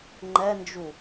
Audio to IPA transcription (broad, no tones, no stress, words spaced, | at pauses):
ŋ͡ǃɛnd͡ʒu